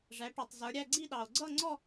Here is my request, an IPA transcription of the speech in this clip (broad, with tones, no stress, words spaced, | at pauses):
ʐæ˩˧ ʈu˩tˤzə˞˩˧ɾʲæ˥˧ ɡ͡ǀi˥˧ɗɑ˩o̯ ɡ͡ǀʌ˥˧ŋ͡ǀɔ˥˧